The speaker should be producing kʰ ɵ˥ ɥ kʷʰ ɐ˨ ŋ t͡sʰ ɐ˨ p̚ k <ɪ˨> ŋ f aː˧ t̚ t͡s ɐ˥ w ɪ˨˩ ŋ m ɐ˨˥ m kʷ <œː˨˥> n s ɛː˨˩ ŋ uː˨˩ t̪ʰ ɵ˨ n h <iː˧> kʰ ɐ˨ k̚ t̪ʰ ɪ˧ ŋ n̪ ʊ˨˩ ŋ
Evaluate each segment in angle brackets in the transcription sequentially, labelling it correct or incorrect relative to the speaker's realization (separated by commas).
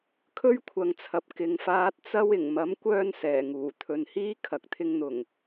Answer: correct, incorrect, incorrect